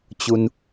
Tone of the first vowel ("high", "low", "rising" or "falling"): high